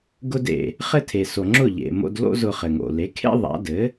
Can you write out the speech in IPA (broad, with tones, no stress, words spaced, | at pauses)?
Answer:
ɡʊ˧dḛ˩ | χɘ˥tʰe˩ so˩ŋ͡ǁʊ˥˩ʎḛ˩ mo̰˧dlo̰˥ zʊ˧χɘ˩ŋo̰˩ le˩˥kʰḛ˥ ðˤa̰˩˥ dɘ˩˥